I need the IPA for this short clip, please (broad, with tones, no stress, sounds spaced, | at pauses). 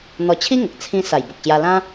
n̪ ɔ˧ t͡ɕʰ i˦ ŋ ə˨ k̚ t͡sʰ ĩ˦ s a˨˩ j b ə˨ k̚ ɕ j a˧ l ã˦